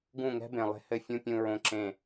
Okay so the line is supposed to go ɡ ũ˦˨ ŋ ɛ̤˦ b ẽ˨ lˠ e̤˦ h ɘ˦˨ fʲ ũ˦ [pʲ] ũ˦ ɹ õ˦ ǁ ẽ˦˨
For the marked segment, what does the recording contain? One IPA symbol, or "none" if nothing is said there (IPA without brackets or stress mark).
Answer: pʲ